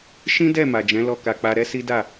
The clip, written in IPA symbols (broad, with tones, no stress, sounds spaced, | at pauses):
ʃ ĩ˦ d ɛ˦˨ m a˨ d͡ʒ ɛ̃˨˦ l ɔ˧ k a˧ k͡p a˧ ɾ ɛ˦ s i˦ d a˦˨